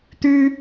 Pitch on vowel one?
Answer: high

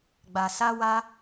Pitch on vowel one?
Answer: low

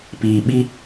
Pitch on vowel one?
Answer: low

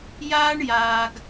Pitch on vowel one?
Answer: high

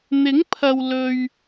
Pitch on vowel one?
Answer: rising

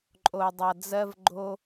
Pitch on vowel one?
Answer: low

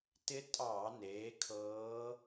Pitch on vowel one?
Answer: rising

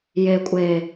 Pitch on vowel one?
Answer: low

